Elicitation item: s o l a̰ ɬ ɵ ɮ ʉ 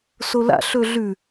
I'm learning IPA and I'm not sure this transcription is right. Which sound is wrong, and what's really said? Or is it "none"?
none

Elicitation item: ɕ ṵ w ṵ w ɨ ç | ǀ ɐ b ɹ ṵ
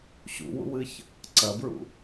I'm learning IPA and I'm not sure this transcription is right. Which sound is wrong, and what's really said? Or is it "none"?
none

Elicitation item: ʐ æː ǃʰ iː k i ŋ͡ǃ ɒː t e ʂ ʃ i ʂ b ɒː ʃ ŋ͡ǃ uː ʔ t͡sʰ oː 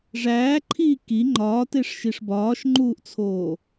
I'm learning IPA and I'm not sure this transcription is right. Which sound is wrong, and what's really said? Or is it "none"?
none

